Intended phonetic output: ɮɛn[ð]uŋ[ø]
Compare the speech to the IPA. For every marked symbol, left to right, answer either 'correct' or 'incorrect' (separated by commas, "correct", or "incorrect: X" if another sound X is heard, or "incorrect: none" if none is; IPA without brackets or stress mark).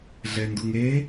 incorrect: d, incorrect: e